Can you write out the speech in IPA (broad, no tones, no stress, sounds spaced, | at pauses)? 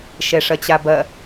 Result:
ʃ ɛ ʂ ɐ t͡ɕ a b ɐ